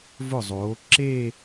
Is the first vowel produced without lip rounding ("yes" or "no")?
no